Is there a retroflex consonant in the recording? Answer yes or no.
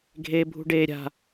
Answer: yes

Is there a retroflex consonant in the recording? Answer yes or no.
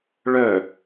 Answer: yes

